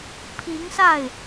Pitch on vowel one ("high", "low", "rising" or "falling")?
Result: rising